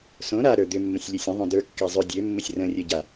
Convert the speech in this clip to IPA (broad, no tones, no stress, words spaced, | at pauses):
sõ ɾaɾə˞ d̪ʏmːə̃sʲ lʲʊsʲə̃ðˤõ də˞kːa zˤʏ dʲømːʊsʲ rə̃rʲə ɟa